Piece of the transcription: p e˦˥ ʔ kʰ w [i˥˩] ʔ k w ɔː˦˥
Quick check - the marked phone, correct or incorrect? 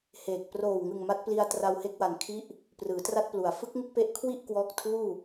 correct